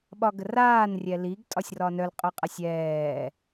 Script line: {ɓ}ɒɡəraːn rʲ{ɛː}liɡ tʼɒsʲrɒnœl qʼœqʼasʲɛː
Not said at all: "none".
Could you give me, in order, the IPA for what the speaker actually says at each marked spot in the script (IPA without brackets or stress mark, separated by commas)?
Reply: ɓ, ɛ